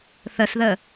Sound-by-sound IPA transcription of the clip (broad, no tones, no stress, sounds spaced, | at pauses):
θ ə s ð ə